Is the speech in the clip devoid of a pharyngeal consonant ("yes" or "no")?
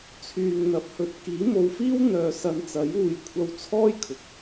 yes